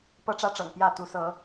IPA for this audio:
pɤ˦ʈ͡ʂä˦ʈ͡ʂɤ̰˨˩ŋ pjä˥˨t̪u˨˦sɤ˨˦

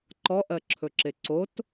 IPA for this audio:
ǃɔʔɜǁʰɵǁe ǀot

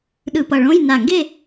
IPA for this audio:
ɗɯ˧˩pʌ˧˩ɭõ˧˥˧j na˧˩ŋɡe˥˧

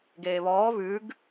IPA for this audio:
ɡeːβɔː βʉɡ

